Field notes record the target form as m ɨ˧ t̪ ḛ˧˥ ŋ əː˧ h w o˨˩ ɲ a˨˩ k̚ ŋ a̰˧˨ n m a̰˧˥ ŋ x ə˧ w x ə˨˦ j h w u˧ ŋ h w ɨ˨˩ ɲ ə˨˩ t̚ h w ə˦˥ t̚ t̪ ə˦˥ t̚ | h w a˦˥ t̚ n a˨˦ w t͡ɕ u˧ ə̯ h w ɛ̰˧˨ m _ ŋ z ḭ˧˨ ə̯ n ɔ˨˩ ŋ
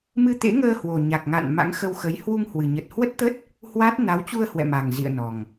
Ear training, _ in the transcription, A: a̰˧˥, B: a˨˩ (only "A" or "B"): B